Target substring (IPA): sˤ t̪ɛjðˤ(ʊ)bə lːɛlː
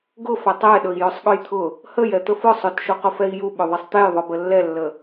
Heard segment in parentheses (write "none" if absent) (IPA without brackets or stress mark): ʊ